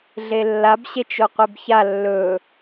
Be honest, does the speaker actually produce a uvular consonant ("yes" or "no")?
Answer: yes